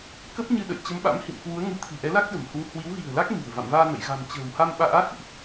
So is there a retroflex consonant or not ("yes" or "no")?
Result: no